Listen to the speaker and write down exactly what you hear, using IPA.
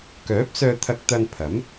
k œː˨˥ p̚ s œː˧ t̪ʰ ɐ˧ k̚ t̪ ɐ˧ n pʰ ɐ˨˥ m

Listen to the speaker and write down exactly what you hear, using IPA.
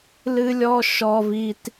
l ɨ˥ lʲ ɔ˥ ʃ ɔ˥ v i˥ t

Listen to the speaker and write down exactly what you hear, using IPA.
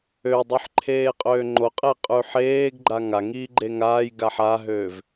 ø dˤ ʉ ħ ǃʰ eː qʼ øː ŋ͡ǃ o qʼ e qʼ ʉ ħ eː ɡ ɡ͡ǃ a ŋ a ŋ iː ɡ͡ǃ e ŋ aː j ɡ a ħ a ɦ øː v

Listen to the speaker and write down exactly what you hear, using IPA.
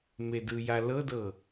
m e d ɯ j a l ɤ d ɤ

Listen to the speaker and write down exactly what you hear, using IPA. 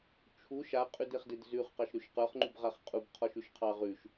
t͡ʃʰ u ʃ a qʼ ʉ d e χ d e d z ʉ χ q ɑ ʃ ɾ ʉ ʃ q ə˞ χ ŋ͡ǃ u b ʁ a χ qʼ u b qʰ ɔ ʃ ʉ ʃ qʰ ɑ ʁ ʉ ʃ

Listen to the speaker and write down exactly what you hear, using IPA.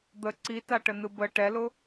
d̪ ə ǀ i t a ʈ ə n ɯ b ə ʈ ɛ l ʊ

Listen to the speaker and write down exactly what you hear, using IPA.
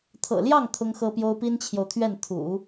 t̪ʰ ɤ̰˨˩ l j ɑ˥˩ ŋ t̪ʰ ʊ˥ ŋ x ɤ˥ p j o˥ ʊ̯ p i˥ n t͡ɕʰ j o˨ ʊ̯ t̪ʰ ɥ ɛ˥˩ n t̪ʰ ṵ˨˩˦

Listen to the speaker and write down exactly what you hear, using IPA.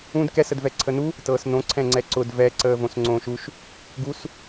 ũ d k ɛ s ə d v ɛ ǀʰ ə n u | t ɤː s n õ ǀʰ ɛ̃ ŋ͡ǀ ɛ ǀ ʊ d v ɛ ǀ əː v õ s ŋ͡ǀ õː ʃ u ʃ | ɡ u s

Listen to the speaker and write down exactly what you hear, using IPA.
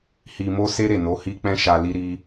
h i˧ m o˦ s e˦ ɾ e˦˨ n o˨˦ h i˦ k͡p ɛ̃˦ ʃ a˧ l i˦ ɾ i˦

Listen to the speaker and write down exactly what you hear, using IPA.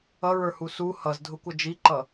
ʌ ɹ ə˞ h u s u h ʌ z dʱ ʊ kʷ ʌ d͡ʒ i ǃ ʌ

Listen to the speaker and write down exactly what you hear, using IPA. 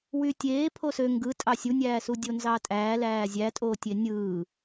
w y tʲ eː pʰ o s ø ŋ ɡ ɯ tʼ ɑ sʲ u nʲ æː s u dʲ o n z ɑ tʼ æː l æː zʲ æ tʼ oː tʲ e nʲ ɯː

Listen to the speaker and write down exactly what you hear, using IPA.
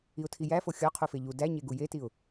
i ʊ̯ tʰ i j æ f o xʲ ɒ qʰ u f e ʎ u d æ ɲ e ɡ u j e t i ʊ̯

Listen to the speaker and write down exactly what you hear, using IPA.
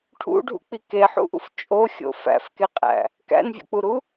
ʈʰ ṵ ɖʱ ṵ k͡p i k e ħ ṵ ʔ ṵ f t͡ʃʼ o xʲ o̰ f æ̰ f k e qʼ æ̰ | k æ̰ n vʲ o̰ k͡p u ɾ u

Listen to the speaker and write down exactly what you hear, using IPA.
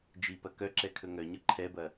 d͡ʒ i p ɐ k œ ǁ ɛ kʰ ɵ ŋ œ ɲ ʌ ǃʰ ɛ b ɐ

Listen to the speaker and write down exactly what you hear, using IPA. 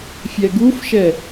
fʲ ɛ ɡ u f ʃ ɛ

